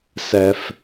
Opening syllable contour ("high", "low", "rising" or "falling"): low